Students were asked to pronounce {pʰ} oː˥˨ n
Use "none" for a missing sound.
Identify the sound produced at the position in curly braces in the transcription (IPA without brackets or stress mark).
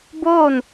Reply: b